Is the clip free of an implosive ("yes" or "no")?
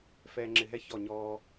yes